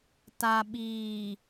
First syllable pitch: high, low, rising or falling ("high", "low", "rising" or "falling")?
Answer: low